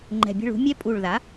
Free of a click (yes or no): no